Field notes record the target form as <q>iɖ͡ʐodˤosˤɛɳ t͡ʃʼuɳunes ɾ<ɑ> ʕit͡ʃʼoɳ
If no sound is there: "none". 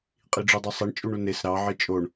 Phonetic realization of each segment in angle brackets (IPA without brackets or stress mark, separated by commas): qʼ, ɑ